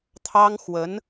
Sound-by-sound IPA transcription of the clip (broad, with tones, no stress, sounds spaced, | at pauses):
t̪ʰ ɑ˥ ŋ x w ə˧˥ n